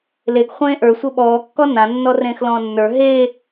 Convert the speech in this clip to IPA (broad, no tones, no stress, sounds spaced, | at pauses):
l e ɡ χʷ ẽː ʔ ə˞ sʷ ɤ ɓ ɔː kː ɔ n ã nː ɔ r ẽː x l ɔ̃ː nː ə˞ ɦ e